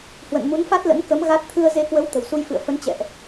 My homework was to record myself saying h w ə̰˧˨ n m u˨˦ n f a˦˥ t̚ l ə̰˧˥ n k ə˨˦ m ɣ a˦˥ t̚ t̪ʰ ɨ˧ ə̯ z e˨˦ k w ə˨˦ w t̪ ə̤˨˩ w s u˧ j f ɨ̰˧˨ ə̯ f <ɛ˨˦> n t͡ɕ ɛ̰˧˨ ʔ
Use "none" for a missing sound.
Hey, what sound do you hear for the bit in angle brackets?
ə˨˦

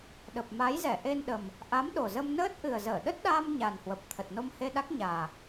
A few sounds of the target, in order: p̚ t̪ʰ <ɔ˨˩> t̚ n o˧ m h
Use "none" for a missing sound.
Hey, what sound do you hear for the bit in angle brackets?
ə˨˩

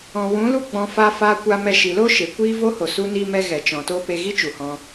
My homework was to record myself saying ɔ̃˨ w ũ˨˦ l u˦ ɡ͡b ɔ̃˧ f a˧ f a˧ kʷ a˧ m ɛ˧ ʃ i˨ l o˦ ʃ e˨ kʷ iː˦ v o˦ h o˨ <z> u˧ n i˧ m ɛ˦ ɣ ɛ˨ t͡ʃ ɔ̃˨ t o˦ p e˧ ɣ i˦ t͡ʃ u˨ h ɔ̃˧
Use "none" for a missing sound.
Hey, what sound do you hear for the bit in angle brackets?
s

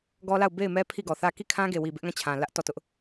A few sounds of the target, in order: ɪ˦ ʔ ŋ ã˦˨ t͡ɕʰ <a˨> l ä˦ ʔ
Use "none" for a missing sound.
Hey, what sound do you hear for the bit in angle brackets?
ã˨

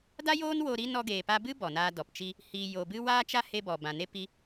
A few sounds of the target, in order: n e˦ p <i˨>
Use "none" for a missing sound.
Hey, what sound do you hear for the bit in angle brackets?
i˦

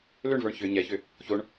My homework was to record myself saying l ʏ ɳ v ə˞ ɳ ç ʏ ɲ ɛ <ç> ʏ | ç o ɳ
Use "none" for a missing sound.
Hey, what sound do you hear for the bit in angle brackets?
ç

